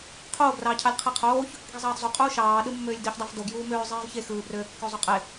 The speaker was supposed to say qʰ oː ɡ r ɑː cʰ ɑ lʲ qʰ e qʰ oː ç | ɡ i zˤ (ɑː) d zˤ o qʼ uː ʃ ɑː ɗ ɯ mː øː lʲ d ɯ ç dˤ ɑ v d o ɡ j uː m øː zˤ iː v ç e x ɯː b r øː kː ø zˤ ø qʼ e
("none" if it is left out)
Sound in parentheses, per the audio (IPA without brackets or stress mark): ɑː